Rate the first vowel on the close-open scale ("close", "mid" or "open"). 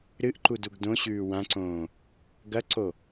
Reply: close